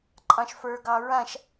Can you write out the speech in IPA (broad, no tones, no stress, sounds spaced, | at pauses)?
ǃʼ ɑ̃ ʃ f ə˞ ɡ ɑ ɹ ã ʃ